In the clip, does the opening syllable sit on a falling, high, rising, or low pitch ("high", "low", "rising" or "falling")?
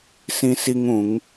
high